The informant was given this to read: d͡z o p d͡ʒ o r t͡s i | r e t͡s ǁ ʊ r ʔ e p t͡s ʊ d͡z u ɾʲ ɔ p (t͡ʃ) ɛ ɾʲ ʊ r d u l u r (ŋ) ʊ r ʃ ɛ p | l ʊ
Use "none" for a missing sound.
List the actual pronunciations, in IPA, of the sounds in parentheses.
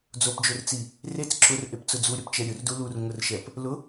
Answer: t͡ʃ, ŋ

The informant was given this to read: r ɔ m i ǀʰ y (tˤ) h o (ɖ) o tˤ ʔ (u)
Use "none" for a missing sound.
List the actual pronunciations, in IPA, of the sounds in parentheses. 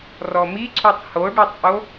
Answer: tˤ, ɖ, o

